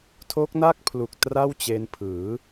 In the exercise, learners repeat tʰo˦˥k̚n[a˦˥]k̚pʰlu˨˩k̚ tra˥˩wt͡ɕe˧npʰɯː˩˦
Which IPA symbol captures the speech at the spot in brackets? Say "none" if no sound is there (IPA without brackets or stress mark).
a˥˩